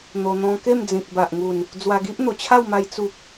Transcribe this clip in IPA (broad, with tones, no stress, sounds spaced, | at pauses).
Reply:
n̪ o˧ n̪ ɔ̃˧ k e˥˧ m d͡z ĩ˨ k̚ b a˨ ʔ ŋ u˨˩ n | d͡z w a˧ ɡ i˦ ʔ n̪ o˨˩ t͡ɕʰ a˥˧ w m a˧ j t͡s u˦ k̚